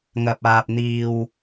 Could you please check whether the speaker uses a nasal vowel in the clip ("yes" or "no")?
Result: no